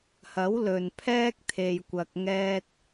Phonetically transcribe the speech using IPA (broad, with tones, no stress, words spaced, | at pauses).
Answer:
hɐ˨˥wlɵ˨npʰɛː˥k̚ t̪ʰe˨jkʷɐ˨k̚ ŋɛː˧t̚